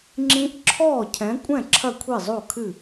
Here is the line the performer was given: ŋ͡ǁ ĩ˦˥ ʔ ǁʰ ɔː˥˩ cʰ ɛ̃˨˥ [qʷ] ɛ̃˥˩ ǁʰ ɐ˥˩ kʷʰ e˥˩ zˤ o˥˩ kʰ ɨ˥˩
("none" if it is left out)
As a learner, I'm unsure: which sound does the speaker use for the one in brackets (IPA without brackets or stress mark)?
kʷʼ